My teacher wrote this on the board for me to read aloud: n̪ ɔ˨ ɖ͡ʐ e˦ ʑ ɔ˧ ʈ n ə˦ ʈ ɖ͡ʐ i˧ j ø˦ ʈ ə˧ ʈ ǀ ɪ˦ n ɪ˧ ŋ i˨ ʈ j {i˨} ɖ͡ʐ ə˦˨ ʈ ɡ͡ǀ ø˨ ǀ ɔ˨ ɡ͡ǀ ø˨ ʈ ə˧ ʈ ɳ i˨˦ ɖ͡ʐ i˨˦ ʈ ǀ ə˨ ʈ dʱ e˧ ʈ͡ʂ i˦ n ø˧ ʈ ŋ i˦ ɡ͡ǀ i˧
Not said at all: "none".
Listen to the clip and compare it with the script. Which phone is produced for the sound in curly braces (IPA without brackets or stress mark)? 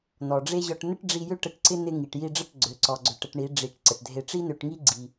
i˧